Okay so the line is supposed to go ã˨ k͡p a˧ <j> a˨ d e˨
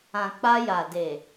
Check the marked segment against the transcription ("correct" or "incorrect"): correct